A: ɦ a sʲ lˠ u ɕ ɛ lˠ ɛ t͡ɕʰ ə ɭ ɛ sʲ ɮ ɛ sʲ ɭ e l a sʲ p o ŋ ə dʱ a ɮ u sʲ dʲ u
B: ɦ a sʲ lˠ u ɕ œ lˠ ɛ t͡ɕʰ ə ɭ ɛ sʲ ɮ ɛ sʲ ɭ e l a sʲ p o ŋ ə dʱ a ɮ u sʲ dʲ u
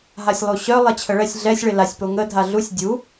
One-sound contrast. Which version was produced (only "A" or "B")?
B